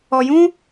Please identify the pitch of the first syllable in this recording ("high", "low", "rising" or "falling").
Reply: low